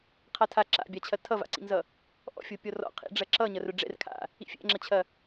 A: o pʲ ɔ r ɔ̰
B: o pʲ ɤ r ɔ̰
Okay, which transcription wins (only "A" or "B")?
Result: A